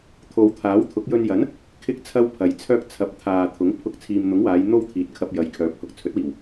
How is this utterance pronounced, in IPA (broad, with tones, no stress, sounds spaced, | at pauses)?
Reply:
t̪ʰ o˨˧ w t̪ʰ aː˨˥ w t̪ʰ ʊ˨˥ k̚ j ɵ˧ n j ɐ˨˥ n | kʰ ɪ˥ k̚ t͡sʰ ɐ˥ w pʰ ɐ˨˧ j t͡sʰ œː˥ k̚ t͡sʰ ɐ˨ p̚ t̪ʰ aː˨ t̪ʰ ʊ˨˥ ŋ pʰ ʊ˧ k̚ t͡sʰ iː˨ m n̪ ʊ˨˥ ŋ w aː˨˧ j n̪ o˥ w t̪ʰ iː˨˥ t̚ kʰ ɐ˧ p̚ j ɐ˨˧ j kʰ œː˨˥ p̚ h ʊ˧ k̚ t͡sʰ ɵ˨˥ t̚ w iː˨˩ w